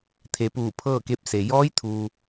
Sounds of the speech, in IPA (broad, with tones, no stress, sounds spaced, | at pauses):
t̪ʰ e˩˧ p uː˧˩ pʰ ɤː˥˨ k e˧ p̚ s e˩ j ɔː˧˥ j t̪ʰ uː˩